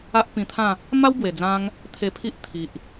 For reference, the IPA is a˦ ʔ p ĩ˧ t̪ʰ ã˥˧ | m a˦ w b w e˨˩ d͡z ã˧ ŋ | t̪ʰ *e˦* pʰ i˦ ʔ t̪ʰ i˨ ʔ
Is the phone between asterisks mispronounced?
yes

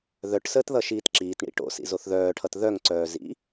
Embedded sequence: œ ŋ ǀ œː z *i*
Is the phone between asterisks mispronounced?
yes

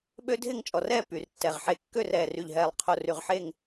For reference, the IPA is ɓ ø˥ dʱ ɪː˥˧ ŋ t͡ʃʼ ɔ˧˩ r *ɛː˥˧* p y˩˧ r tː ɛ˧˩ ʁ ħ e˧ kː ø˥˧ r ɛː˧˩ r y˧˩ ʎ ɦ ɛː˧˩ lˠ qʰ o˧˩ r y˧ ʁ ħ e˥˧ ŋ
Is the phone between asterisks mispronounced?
no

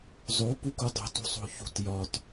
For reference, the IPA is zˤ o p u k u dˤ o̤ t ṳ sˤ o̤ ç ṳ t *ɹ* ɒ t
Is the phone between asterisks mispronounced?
yes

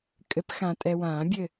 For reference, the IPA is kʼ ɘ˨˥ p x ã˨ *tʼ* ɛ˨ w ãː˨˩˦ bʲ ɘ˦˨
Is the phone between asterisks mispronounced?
no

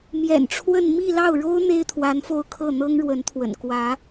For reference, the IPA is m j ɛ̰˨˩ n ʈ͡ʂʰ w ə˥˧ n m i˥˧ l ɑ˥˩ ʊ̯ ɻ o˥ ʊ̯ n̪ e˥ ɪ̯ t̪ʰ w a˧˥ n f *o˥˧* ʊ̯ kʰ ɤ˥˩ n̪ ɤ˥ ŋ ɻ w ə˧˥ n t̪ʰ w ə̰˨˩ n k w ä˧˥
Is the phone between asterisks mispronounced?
no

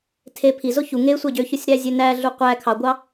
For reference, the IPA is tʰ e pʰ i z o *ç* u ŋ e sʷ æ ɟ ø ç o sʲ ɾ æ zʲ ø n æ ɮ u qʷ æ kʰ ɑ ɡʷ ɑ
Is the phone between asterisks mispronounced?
no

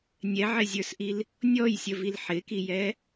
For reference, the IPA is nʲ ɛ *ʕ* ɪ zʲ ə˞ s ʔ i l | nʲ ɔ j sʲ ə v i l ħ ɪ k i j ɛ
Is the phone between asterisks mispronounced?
no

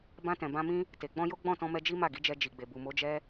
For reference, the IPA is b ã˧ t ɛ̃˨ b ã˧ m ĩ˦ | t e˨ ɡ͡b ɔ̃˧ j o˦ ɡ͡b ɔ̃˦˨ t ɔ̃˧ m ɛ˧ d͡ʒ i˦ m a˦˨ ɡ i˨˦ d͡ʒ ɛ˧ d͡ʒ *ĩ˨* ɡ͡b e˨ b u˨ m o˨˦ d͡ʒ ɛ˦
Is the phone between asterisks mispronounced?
yes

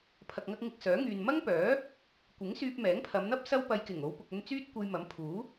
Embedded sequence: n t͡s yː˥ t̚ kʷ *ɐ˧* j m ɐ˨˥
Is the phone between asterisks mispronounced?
no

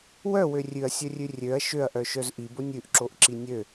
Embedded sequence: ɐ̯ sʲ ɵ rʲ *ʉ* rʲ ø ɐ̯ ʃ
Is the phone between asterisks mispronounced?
no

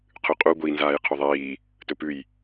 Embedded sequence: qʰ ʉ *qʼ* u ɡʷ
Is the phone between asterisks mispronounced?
no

